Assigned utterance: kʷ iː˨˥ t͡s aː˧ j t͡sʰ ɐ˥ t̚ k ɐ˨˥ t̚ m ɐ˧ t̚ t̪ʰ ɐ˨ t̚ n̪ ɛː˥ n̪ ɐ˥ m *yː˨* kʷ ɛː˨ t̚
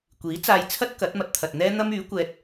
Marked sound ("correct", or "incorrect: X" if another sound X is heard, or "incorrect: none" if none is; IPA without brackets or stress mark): incorrect: yː˨˥